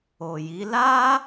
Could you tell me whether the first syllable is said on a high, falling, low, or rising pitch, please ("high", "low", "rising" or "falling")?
low